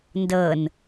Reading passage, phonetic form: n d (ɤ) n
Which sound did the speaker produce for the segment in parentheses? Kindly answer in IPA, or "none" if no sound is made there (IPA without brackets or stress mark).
ɤ